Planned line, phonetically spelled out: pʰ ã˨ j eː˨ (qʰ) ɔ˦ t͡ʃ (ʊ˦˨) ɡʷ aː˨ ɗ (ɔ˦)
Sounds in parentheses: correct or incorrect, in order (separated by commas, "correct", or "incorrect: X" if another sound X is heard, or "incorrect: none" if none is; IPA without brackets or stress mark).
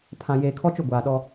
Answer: incorrect: kʰ, correct, correct